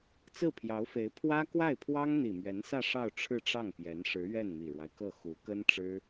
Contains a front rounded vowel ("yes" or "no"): no